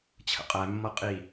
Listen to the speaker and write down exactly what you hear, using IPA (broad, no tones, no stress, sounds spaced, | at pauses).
t͡ɕʰ ə̰ qʼ æ mː ʌ qʼ i